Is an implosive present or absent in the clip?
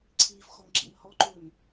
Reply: absent